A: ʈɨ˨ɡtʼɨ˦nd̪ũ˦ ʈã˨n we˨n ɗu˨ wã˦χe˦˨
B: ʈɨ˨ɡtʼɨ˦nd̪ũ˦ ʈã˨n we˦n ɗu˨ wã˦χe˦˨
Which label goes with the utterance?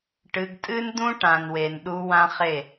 A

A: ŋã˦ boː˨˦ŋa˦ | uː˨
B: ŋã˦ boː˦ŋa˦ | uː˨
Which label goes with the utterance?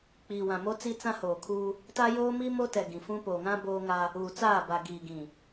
B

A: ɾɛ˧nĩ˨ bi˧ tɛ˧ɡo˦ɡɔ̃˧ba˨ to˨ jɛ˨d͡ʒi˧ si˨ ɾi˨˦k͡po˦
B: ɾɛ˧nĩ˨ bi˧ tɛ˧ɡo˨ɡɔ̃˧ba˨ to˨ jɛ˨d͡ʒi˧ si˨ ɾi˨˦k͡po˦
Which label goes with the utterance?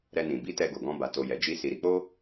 B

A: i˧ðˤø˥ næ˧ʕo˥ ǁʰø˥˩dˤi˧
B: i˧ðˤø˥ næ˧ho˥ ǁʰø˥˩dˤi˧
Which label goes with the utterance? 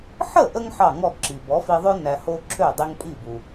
B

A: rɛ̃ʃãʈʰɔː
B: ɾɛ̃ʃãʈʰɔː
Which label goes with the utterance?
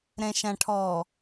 B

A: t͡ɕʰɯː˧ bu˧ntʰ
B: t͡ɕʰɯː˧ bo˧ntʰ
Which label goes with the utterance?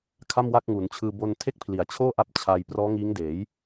B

